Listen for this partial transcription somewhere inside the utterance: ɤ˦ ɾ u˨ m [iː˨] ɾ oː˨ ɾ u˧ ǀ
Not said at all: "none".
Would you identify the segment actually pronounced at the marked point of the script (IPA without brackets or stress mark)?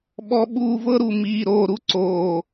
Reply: iː˨